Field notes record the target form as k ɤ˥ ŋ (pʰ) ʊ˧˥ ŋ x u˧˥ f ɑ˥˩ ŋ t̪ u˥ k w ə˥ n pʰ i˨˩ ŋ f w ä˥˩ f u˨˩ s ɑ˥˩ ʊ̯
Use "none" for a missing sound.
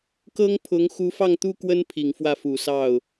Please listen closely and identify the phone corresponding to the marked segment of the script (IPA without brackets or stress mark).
pʰ